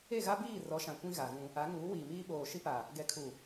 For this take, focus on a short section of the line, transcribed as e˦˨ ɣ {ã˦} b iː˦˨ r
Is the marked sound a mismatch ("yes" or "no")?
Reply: yes